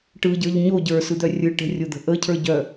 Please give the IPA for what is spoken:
ʈɯɟə˞ʎ ɲo ɟə˞sɯd̪œ rʲɯʈə̤rʲod̪ə̤ ʔəcʰə˞ɟœ

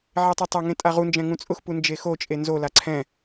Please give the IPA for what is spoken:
ʕetˤɛtˤaŋẽ tʼaʁund͡ʒɛ̃ ŋũt͡sʼʊxpu nd͡ʒexot͡ʃʼe nzola ǀʰɛ̃

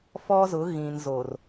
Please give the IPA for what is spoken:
fɔ˦zʊ˨˦ ɣĩ˨n zo˨r

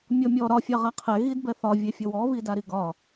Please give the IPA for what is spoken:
mʲɔmʲɔ ɾɒ fʲɑʁaqʰɛ ɣidbɛθɒ vʲefʲɔwɔ βidaɾiɡɒ

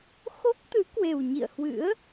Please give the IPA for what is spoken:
xo˦˥k̚t̪ɨ˨˦ kwe˨˩wɲḭ˧˨ə̯hwɨ̰˧˥ə̯

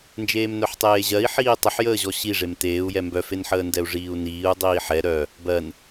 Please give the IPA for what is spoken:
nd͡ʒeːmnœħtˤeːʑɜi̯ ħiːtˤəħjəː ʑɔɕiʐem teːu̯jɛ mbœfenħəːndɛu̯ ʐiːu̯niːu̯ dˤiːħɛ ɾœ | bɜn

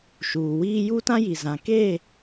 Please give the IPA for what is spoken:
ʃuː˨wiː˦ ju˦tã˦ji˨ zã˨ ke˦˨

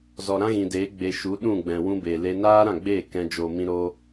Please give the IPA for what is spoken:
zɔ˨ɾã˦ɣĩ˨deː˨˦ ɡ͡be˧ ʃu˨˦ɗũ˦˨ ɡ͡bɛ̃˨ wũ˧beː˨le˧ naː˦ɾã˦˨ɡ͡beː˦˨ kɛ̃˧ d͡ʒo˨mĩ˧ ɾo˦

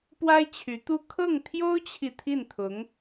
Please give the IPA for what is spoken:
pwa˥ɪ̯t͡ɕʰy˧˥t̪u˥˧ kʰɤ˥˩ŋt̪ʰjo˥ʊ̯t͡ɕʰi˨ t̪ʰi˥˩nt̪ʰʊ˧˥ŋ

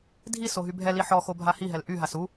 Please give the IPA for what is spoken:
dʱi soɦybʱɛli ħɔxo bʱahiɦɛl ʔyɦas u

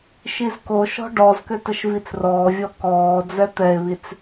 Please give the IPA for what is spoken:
ʃizkoʃɔ̤ ɖɔzkʏ təʃvit͡srɔːvʲɔ kɔː d͡zɛt̪ɛe̯βit͡s

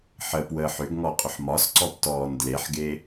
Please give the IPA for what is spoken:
ħəpwəːħ ʏɡŋɔqʼʏħ mɒsǀɔptɔːn dleħɡe

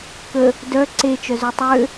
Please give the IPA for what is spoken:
kə | dœ ǀet͡ʃœzø tˤø

